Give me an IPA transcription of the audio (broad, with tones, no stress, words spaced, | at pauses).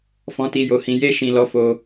fɔ̃˦ti˦jo˦hĩ˦ je˦ʃĩ˧ lɔ˦fo˦